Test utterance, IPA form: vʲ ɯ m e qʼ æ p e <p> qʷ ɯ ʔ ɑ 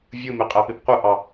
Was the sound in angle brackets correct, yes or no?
yes